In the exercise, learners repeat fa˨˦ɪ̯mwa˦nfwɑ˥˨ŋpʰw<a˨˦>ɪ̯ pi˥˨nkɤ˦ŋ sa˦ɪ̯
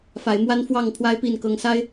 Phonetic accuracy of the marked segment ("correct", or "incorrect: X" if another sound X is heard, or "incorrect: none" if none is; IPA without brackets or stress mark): incorrect: a˦